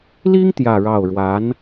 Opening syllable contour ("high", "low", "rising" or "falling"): high